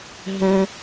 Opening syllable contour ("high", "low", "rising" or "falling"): high